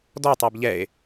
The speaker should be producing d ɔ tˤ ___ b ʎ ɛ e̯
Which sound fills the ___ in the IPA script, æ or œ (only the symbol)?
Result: æ